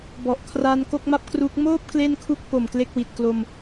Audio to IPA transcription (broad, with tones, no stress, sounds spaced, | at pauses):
b ɔ˨˩ ʔ kʰ r aː˧ n k o˥˩ k̚ m a˥˩ p̚ k r u˦˥ k̚ m oː˥˩ p̚ k l e˥˩ n kʰ u˥˩ k̚ p o˨˩ m k l e˥˩ k̚ w i˨˩ t̚ k l o˧ m